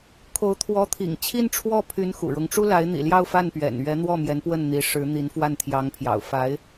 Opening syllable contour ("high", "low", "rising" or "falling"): rising